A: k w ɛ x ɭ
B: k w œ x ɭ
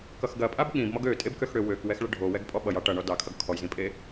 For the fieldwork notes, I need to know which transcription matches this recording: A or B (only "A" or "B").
A